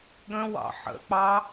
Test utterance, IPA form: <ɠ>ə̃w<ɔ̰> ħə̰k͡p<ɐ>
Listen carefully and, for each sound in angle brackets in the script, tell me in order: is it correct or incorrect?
correct, incorrect, incorrect

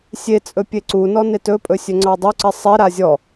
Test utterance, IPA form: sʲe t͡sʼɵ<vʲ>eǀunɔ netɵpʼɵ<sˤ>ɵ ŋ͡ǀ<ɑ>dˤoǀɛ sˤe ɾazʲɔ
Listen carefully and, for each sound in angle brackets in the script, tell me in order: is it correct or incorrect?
incorrect, incorrect, correct

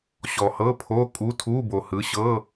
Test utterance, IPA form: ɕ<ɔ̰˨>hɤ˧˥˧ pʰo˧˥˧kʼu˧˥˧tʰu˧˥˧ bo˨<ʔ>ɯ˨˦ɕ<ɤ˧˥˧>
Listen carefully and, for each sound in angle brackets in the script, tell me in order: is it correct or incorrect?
incorrect, incorrect, correct

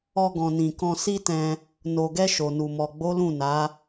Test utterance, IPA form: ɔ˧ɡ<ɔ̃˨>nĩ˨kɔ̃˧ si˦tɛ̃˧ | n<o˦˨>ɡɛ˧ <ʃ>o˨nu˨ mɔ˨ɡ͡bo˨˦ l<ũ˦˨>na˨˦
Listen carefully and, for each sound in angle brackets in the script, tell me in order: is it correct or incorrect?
correct, incorrect, correct, correct

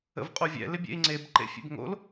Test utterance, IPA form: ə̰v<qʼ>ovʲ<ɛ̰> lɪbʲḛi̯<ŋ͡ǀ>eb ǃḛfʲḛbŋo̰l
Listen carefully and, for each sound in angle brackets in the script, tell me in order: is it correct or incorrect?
correct, correct, correct

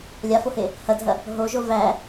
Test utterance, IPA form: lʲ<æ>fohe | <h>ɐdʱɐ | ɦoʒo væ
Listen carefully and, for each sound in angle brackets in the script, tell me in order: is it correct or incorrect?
incorrect, correct

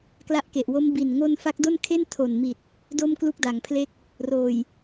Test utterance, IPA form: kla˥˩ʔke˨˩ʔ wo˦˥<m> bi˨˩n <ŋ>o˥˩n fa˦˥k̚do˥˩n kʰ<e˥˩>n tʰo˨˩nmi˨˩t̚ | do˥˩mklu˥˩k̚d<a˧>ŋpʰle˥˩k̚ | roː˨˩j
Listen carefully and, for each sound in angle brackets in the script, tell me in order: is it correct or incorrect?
correct, correct, correct, incorrect

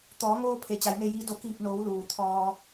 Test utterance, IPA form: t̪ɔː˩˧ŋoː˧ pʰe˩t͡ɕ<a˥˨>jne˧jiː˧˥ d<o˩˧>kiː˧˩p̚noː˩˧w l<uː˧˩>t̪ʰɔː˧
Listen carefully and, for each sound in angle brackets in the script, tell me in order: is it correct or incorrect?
incorrect, correct, incorrect

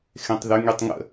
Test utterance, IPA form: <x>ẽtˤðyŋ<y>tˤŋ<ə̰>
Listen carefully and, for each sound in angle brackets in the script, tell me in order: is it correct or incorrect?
correct, correct, correct

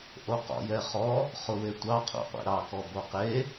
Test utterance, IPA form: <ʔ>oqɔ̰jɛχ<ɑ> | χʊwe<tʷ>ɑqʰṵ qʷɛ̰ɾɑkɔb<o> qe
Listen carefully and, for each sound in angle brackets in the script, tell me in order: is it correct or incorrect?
correct, incorrect, correct, correct

